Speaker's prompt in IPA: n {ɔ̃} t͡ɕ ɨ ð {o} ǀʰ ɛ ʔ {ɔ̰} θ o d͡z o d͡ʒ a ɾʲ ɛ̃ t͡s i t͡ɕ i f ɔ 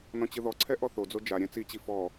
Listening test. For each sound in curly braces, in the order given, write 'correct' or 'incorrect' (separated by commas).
correct, incorrect, incorrect